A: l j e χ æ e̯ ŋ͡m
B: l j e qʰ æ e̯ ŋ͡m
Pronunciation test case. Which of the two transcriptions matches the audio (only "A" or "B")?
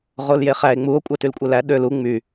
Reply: A